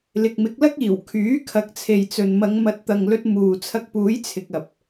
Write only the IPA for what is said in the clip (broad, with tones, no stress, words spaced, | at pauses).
lɪ˨k̚mɪ˨˥k̚lɐ˥k̚iː˨˩w kʰyː˨˥kʰɐ˨˥k̚t͡sʰe˨jt͡sɵ˨n mɐ˨˧ŋmɐ˨˥t̚t̪ɐ˨ŋlɵ˧t̚ muː˨ t͡sʰɐ˧k̚puː˨˥j t͡sʰɪ˨k̚ɐ˨p̚